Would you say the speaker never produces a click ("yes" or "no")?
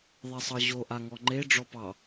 no